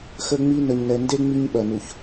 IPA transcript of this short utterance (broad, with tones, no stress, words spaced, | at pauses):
xə˦ŋ͡mi˦ nə˨ɲnɛ˨nde˦ ŋ͡mi˦ɲɓɐ˨nu˨ç